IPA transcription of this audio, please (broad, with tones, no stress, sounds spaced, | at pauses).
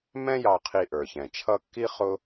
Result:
m ɛ̃˦ j ɑ˨ qʰ i˨ ʔ ə˞˩ ç ɛ̃˩ t͡ʃʰ ʌ˦ kː i˥ χ ʊ˥